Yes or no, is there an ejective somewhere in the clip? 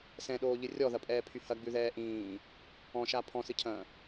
yes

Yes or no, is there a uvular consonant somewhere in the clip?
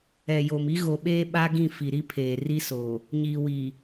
no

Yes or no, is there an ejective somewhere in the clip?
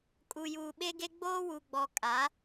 yes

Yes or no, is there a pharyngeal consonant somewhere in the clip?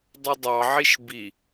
yes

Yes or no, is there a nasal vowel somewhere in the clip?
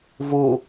no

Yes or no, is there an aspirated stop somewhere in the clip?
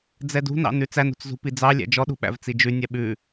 no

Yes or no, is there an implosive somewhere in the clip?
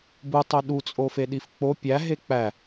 yes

